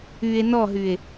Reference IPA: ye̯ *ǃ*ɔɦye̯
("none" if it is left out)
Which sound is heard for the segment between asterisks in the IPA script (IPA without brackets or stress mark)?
n